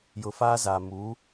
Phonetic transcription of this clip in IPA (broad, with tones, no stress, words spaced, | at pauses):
jʊ˨fa˦za˨ mu˨˦